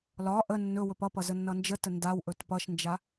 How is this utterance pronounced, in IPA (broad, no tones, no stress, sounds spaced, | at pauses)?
l ɒ ʔ ə nː ɵ w ɵ p ʌ p ʌ z ə nː ʌ n d͡ʒ ə t ə n d a w ʔ ɵ t p ʌ ʃ n d͡ʒ a